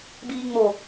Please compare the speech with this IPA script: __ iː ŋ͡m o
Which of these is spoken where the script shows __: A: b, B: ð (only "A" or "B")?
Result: A